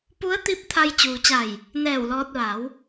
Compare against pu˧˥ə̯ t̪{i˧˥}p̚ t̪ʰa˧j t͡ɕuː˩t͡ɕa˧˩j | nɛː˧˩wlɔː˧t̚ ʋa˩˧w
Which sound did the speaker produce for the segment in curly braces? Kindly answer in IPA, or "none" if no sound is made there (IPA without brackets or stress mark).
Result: i˧˥